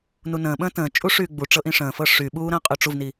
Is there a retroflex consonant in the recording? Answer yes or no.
yes